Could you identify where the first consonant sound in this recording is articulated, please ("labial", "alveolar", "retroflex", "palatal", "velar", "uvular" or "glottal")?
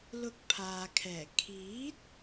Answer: alveolar